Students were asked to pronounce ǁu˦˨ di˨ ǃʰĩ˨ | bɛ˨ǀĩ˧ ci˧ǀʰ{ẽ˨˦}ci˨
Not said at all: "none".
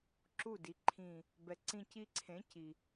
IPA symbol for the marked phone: ẽ˨˦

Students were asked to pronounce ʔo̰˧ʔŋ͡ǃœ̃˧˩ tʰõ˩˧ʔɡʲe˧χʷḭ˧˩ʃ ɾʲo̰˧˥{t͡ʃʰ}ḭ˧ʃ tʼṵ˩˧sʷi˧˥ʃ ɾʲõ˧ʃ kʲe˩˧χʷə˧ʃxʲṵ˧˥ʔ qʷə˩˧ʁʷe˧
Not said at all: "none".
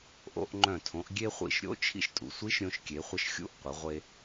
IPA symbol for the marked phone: t͡ʃʰ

